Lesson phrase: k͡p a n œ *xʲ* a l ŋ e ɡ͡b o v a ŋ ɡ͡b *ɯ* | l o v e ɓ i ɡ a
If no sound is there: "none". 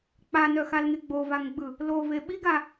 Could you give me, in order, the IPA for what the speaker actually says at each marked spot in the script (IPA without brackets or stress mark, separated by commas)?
x, ɯ